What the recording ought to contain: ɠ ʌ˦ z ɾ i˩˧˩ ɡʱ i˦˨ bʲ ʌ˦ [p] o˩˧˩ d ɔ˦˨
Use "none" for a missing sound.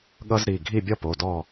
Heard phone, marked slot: p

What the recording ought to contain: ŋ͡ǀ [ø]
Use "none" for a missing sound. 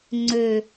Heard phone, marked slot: ø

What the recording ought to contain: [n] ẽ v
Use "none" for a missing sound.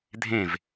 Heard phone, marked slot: dʱ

